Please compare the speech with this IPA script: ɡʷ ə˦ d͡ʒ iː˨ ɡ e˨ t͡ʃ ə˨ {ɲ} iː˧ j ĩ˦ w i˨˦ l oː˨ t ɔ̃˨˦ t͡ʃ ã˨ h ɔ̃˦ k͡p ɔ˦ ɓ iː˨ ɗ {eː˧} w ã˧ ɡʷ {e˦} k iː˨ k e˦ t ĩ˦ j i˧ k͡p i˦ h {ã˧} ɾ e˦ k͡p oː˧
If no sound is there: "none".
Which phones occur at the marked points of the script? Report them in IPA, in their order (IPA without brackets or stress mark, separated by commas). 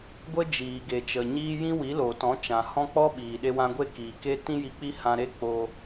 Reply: ɲ, e˧, e˦, ã˧